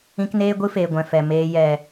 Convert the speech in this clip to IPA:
ĩ˧ k n eː˦ ɡʷ ɨ˦ f eː˨ ɡʷ ɛ̃˨ f ɛ˨ m eː˧ j ɛ˨

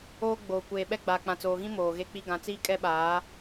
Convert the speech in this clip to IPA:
oː˦ ɡ͡b oː˨ kʷ eː˨ ɓ ɛ˦ ɡ͡b aː˨ k͡p ã˨ t͡s oː˨ ɣ ĩ˦ m oː˨ ɣ e˦ k͡p i˦ ɡ ã˨ t͡s iː˦ kʼ ɛ˦ ɓ aː˨˦

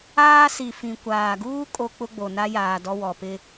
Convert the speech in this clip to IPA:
aː˦ s i˨ f ĩ˨ kʷ aː˨ ɡ uː˦ kʼ o˦ k͡p ʊ˦ ɡ͡b o˨ n a˦ j aː˨ d ɔ˦ w ɔ˨ p ɪ˦

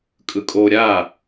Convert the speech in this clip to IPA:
kʼ ɯ kʼ o ɾʲ a

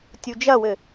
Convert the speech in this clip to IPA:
tʲ u d͡ʒ ɐ w ɘ

